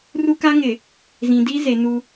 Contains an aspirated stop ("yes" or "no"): no